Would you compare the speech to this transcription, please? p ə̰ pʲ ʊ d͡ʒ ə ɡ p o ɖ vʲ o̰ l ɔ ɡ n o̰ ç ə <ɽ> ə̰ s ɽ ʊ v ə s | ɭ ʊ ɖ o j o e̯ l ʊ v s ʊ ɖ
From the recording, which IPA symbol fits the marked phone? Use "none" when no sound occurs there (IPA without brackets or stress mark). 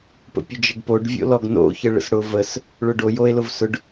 ɭ